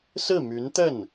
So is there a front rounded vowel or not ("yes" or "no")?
yes